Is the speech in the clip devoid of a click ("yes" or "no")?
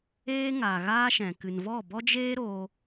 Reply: yes